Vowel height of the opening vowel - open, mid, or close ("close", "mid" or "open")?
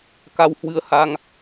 open